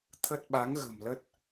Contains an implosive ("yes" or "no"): yes